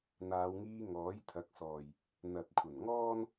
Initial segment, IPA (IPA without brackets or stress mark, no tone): n̪